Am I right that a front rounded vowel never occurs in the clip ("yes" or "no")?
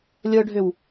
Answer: no